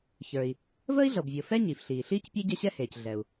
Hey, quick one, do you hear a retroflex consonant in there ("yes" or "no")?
no